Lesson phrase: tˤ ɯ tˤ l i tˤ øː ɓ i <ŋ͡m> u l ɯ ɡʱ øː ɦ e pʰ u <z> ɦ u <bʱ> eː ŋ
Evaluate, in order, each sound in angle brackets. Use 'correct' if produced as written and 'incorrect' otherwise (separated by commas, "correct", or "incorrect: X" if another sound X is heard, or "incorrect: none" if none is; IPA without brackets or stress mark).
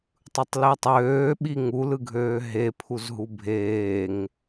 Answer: incorrect: ŋ, correct, correct